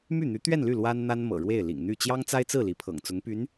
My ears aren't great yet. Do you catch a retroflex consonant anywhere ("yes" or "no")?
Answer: yes